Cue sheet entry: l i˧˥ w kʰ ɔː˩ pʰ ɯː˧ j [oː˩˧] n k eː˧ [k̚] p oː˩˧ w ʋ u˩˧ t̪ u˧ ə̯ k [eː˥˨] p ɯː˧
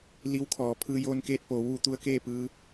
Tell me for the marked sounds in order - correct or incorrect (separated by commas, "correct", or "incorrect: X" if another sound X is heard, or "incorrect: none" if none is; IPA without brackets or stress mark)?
incorrect: oː˧, incorrect: t̚, correct